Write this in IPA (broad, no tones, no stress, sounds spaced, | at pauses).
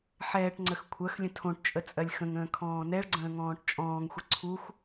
ħ ɛː ʈ ŋ͡ǀ ə x kʷʰ ɜ x lʲ ə̃ tʰ õ ʈ t͡ʃʼ ə t͡sʼ ɜ lʲ x ə̃ ŋ ə̃ː kʰ ɔ̃ː n ɛ ɭ ɡ͡ǀ ə̃ː ŋ ɔ̃ː ʈ t͡ʃʼ ɔ̃ː ŋ xʷ ə ǀʰ u x